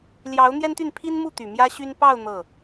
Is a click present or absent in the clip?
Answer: absent